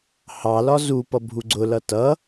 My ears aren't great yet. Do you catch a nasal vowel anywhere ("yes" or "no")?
no